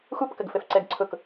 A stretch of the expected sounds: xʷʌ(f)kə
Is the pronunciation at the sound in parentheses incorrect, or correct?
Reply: incorrect